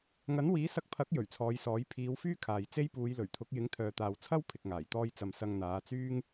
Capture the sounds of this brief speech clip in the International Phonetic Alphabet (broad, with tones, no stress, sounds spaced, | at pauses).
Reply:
ŋ ɐ˨˥ n w iː˨˥ s ɐ˧ k̚ pʰ ɐ˨˥ k̚ j ɵ˨˩ ɥ t͡sʰ ɔː˨˧ j s ɔː˨˥ j pʰ iː˨˧ w f yː˥ kʰ aː˨ j t͡s e˥ j p uː˨˧ j l ɵ˨˩ ɥ t̪ʰ ʊ˨˥ k̚ j ɪ˨˥ ŋ t̪ʰ œː˨ t̪ aː˨ w t͡sʰ ɐ˥ w pʰ ɪ˨ k̚ ŋ aː˨˩ j t̪ ɔː˧ j t͡s ɐ˨ m s ɐ˧ ŋ n̪ aː˨˧ t͡s yː˥ ŋ